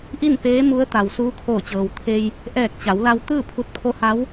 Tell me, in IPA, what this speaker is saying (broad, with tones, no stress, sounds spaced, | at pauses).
ʔ i˥˨ n p eː˧˥ m u˧˥ ə̯ t̪ a˩ w s uː˧˥ kʰ oː˧˩ t͡ɕ ɤː˩ w t̪ʰ e˧ j | ʔ ɛː˧˩ k̚ t͡ɕ a˩˧ w l a˧ w t̪ ɯː˥˨ pʰ u˧ t̚ pʰ o˧˥ h a˧˥ w